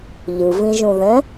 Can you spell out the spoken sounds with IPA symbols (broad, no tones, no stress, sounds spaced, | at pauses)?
ʎ ɯ v ĩ ʒ ũ ð ɛ̃